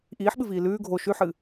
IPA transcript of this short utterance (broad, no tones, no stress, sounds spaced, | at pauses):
ʔ iː ħ ɓ ɨ v iː l ʉː ɡʱ o ʃ ʉ ħ ɨː